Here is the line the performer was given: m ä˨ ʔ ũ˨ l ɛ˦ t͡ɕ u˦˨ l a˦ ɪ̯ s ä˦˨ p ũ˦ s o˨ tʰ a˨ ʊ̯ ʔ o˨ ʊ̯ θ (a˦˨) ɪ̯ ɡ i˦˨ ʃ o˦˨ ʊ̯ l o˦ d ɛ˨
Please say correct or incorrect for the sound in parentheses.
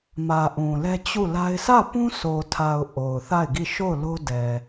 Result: correct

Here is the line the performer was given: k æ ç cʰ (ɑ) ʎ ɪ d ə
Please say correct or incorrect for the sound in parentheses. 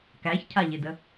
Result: incorrect: a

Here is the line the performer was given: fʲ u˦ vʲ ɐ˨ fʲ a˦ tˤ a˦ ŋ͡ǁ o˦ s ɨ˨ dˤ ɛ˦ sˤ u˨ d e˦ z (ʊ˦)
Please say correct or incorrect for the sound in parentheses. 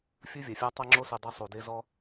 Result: incorrect: ɔ˦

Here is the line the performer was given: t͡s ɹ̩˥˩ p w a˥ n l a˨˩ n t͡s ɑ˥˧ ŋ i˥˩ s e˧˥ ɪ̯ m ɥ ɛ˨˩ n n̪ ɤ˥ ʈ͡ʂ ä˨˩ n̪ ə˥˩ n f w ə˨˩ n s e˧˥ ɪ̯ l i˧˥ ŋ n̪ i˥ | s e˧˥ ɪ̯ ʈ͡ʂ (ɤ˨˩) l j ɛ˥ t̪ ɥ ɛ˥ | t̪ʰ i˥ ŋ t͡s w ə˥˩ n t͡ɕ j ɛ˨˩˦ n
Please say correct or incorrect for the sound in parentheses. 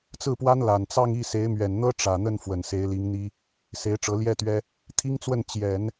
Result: incorrect: ɤ˧˥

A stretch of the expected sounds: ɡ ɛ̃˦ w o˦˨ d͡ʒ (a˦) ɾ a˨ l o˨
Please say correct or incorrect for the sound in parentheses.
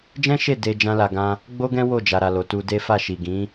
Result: incorrect: a˨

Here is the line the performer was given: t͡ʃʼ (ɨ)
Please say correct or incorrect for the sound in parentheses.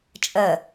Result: incorrect: ə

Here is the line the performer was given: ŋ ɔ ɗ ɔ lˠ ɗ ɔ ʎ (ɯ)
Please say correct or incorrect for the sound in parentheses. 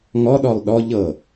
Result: incorrect: ɤ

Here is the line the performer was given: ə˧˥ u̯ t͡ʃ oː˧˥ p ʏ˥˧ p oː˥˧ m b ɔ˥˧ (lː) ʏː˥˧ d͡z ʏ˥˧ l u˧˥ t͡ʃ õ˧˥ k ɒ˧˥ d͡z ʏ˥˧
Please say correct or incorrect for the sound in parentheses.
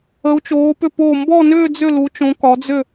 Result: incorrect: n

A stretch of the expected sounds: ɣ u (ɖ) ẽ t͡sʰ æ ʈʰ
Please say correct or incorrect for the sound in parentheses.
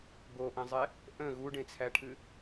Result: correct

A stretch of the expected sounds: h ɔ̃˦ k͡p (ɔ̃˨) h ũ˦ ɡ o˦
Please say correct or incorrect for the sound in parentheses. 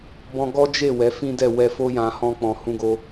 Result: incorrect: ɔ̃˧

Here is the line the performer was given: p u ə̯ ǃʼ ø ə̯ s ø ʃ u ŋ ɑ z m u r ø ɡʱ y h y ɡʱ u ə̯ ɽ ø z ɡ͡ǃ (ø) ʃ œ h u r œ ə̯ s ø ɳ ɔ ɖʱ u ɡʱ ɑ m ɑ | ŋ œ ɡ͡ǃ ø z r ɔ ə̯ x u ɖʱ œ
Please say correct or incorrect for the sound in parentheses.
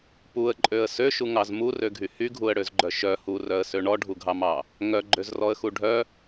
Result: incorrect: œ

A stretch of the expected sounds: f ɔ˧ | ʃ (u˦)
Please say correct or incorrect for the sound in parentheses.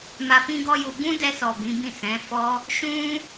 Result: incorrect: ũ˦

